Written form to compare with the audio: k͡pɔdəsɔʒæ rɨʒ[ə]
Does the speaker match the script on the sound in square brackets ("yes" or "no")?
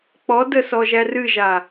no